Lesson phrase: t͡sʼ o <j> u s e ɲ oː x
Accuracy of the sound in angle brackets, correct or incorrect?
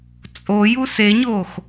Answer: correct